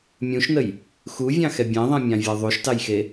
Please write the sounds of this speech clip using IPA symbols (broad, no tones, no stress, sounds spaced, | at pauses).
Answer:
mʲ ũ ʃ n ə j | x u vʲ ɑ̃ x ɛ bʲ ẽ ðˤ ɛ̃ mʲ ɑ̃ vʲ ɜ ðˤ u ʃ t ɑ j x e